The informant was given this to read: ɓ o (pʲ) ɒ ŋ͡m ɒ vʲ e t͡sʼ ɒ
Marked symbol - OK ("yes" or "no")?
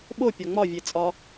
yes